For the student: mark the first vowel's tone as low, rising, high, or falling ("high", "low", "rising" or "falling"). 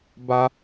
high